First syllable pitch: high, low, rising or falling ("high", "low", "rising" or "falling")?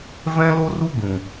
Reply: high